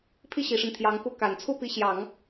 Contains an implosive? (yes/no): no